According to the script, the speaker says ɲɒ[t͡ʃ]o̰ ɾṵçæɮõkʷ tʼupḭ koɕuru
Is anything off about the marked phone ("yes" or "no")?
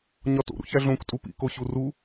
yes